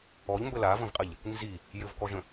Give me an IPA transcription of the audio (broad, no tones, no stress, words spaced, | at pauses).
ɔʎmbə lavə̃vqʼəʎ | nzi | jɘvkɔʒə̃